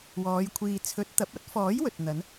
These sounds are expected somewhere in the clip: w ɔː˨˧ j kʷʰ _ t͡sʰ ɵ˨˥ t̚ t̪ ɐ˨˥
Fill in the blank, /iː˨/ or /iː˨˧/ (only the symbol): iː˨